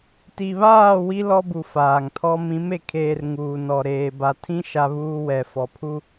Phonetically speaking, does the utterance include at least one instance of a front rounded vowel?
no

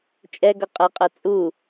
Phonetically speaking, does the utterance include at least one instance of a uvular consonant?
yes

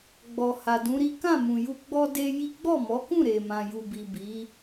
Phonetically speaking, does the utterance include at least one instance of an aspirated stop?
no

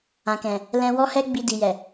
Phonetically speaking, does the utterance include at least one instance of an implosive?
no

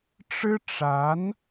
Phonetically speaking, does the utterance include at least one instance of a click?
no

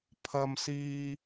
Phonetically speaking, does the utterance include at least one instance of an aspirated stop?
yes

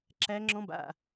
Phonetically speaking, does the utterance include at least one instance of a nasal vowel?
yes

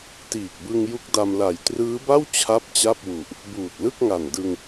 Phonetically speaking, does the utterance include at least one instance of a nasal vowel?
no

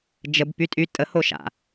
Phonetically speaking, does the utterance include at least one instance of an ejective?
yes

